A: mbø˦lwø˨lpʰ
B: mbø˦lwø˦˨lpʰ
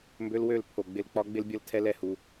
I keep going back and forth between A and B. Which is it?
B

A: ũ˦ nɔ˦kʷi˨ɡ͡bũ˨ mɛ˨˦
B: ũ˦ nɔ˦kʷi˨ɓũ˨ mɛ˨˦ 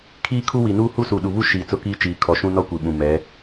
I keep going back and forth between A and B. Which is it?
B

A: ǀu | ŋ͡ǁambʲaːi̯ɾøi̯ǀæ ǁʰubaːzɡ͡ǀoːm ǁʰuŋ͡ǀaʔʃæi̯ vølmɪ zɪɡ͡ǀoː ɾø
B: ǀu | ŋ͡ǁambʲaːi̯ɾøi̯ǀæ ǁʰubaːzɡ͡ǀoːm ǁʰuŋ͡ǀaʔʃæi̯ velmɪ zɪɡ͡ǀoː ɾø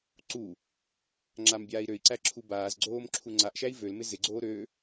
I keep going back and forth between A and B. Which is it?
A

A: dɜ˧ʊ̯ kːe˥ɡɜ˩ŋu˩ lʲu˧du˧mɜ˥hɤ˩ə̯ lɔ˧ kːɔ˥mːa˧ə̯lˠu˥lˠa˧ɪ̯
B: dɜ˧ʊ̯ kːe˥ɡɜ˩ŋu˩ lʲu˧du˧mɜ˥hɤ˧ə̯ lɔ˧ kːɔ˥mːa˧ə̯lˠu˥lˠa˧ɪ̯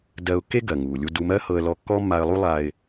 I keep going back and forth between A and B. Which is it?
B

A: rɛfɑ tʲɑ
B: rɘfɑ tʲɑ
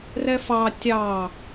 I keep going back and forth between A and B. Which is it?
A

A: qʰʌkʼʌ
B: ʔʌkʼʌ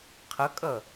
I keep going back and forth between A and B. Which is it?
A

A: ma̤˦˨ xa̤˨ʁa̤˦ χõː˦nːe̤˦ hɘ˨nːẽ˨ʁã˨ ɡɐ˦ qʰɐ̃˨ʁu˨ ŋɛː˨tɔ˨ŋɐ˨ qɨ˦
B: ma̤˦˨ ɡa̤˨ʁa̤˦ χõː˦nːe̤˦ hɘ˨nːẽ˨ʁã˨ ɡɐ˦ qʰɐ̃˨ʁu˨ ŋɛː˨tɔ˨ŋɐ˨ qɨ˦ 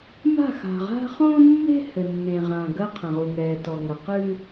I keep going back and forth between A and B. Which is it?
A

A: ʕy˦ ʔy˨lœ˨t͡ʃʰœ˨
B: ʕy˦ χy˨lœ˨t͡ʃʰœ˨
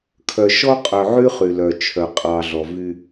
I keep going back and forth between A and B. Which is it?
B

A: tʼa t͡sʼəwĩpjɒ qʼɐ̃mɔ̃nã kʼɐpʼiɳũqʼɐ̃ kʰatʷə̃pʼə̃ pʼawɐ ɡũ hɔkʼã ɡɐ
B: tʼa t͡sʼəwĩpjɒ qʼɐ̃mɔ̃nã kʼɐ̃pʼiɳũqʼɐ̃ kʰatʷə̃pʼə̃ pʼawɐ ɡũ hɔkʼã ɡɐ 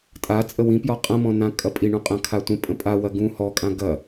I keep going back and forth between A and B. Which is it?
A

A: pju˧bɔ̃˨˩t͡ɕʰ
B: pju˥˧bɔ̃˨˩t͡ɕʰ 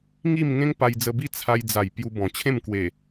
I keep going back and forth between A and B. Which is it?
A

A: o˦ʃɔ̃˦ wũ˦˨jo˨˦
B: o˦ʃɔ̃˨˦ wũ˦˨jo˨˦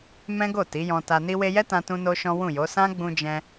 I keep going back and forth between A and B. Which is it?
A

